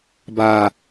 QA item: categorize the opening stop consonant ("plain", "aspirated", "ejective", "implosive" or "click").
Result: plain